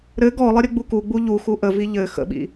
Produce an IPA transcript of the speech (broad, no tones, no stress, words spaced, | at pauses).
ɾɘ ɡɔlˠə ɾʲɘɡ͡bukuɡ͡bu ʎu xuʔəvi ʎɘ xə̰ɓḭ